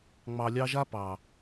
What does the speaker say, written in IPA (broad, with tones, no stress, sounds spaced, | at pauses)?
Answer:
ŋ͡m ɑ˨ lʲ ɑ˧ ʒ a˦ p ɑ˨